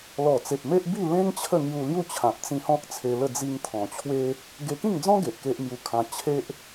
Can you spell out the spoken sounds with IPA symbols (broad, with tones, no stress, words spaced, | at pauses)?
lɔ˨˩t͡se˨p̚ me˦ʔbi˥˧lẽ˦ŋ t͡ɕʰə˥˧ŋju˧lju˥˧ t͡ɕʰã˨p̚t͡sĩ˧ hɔ̃˦k̚t͡sʰe˧lə˥˧ d͡zi˧ŋt̪ʰɔ̃˨˩t͡ɕʰwe˦ | ɡe˧kĩ˥˧ŋd͡zɔ̃˦ ɡe˨ʔke˦ʔmju˧kʰã˧ t͡ɕʰe˦ʔ